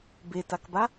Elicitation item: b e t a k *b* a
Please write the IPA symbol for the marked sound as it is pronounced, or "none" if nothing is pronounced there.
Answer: b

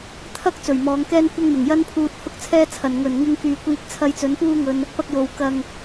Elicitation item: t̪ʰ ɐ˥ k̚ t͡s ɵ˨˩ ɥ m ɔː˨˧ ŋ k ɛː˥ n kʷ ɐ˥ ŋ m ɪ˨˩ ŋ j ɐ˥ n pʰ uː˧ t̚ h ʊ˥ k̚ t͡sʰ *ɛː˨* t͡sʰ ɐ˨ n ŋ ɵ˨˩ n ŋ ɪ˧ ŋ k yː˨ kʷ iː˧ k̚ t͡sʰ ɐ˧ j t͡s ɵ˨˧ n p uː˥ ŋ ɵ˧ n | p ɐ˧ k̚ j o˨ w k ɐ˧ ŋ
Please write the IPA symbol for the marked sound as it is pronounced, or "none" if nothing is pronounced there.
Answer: ɛː˥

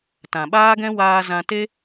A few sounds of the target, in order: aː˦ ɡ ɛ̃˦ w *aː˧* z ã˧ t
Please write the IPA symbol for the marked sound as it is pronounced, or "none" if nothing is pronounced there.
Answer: aː˧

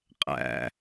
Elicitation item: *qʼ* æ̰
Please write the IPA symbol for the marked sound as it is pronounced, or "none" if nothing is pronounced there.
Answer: qʼ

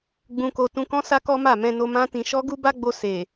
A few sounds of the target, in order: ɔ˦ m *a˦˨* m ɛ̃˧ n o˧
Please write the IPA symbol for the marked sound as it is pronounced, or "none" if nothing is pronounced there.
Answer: a˦˨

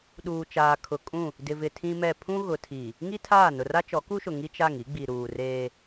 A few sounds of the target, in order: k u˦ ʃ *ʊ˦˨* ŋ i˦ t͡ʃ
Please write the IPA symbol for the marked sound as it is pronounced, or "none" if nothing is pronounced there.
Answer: ʊ˨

